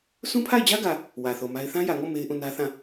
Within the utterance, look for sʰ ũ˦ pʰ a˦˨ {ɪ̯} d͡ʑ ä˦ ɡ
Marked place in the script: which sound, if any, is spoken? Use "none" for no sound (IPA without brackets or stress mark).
ɪ̯